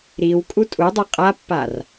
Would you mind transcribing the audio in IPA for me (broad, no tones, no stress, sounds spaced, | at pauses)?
ɾ i w kʼ u tʼ u dˤ u qʼ a pː a r